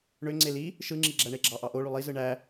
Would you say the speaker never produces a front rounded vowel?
no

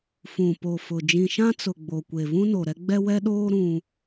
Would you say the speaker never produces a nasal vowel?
no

